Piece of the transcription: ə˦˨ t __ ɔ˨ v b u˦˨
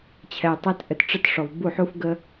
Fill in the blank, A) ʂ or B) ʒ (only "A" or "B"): A